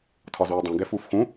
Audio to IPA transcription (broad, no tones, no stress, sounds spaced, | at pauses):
tʰ ɒ z w ɛ dˤ ũ ɡ ɛ f u f x ũ